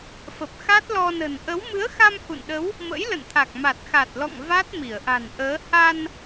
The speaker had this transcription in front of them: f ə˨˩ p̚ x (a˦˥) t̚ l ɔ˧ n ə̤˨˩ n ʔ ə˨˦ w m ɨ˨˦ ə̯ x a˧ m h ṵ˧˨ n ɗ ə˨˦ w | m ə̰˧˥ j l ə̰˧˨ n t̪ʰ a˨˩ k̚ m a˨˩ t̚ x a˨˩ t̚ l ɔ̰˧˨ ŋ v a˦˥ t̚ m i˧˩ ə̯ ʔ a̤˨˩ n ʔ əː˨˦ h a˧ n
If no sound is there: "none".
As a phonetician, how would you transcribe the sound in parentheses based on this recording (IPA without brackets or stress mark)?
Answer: a˦˥